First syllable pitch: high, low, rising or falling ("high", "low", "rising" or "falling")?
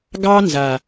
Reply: high